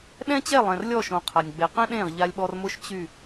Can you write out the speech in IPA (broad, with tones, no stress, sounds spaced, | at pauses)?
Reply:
ɗ ɛ̃˦ t͡ɕ ɛ˦˨ lˠ ɛ̃˨ r lʲ ɔ˦˨ ʃ õ˨ qʰ a˨ nʲ ɡ͡b e˨ q ɛ̃˦ ɗ ẽː˦˨ ʁ ʎ a˦ lʲ ɓ ɔ˦ r m ʊ˦ ʃ t͡ɕ y˦˨